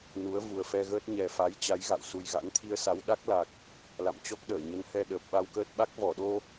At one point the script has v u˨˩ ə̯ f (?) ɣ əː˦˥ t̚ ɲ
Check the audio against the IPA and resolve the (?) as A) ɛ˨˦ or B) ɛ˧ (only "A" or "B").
B